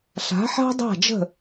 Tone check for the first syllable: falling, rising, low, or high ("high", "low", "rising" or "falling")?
rising